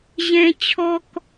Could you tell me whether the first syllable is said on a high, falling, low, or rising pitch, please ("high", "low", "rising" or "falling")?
high